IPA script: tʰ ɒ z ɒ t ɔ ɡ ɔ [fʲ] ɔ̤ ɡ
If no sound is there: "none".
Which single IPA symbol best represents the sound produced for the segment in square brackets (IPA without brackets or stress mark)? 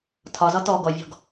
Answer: vʲ